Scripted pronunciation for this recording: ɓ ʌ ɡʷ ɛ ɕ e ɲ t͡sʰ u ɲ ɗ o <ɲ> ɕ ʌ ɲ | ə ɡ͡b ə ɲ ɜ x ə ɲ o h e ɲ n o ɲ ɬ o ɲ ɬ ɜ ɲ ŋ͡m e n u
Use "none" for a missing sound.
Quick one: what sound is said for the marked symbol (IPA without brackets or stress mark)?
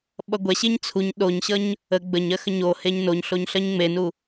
ɲ